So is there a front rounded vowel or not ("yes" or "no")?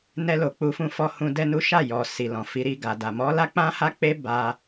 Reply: no